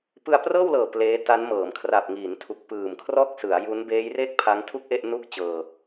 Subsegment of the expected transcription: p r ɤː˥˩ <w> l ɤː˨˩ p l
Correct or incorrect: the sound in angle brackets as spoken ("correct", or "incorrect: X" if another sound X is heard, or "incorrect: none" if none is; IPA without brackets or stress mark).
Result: correct